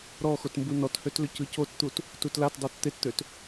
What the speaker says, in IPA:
ɾɔ xotmbunɔthøt lʏcɯcott̪ut | tutlatdˤot t̪ett̪øt

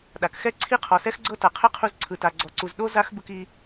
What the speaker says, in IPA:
ɗa˩kxɛ˥ ǀʰi˥qʰɔ˩sɛ˥x ɡ͡ǀɤ˥ta˩ qʰɛ˥qʰu˧z ǀʰɯ˩ta˩ɡ͡ǀɔ˩ǀu˩z ɗo˥ za˥xbɯ˧ki˧

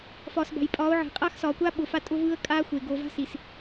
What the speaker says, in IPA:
fɒː˨sba̤˨jpʼɒː˨˦ʊ̯ʕe̤˨ qʼaː˦xsɒː˨kʷaː˦ ɓʊ˨fa˦ tʼʊ˦vɯː˦ə̯ kʼaː˦xʷe˨ ɡo˨va̤˦ si˨s

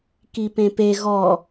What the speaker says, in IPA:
kipẽpe ɣɔ

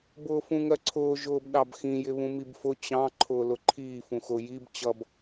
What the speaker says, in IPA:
bʊːfũŋɜǀʰʊː ʒʊːbɗɑbxĩ jɪβũmibfʊ t͡ɕɑ̃ ǃʰʊːlʊǃʰiː fũxʊ jib t͡ɕʌb

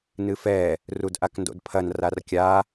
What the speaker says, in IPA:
nɨfɛ | rudʔakndo̰dpʰɐn rarkʲa

